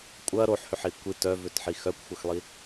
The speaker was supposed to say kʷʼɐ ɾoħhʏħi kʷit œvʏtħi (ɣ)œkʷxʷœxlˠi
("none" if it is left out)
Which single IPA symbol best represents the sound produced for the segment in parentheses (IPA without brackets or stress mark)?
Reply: x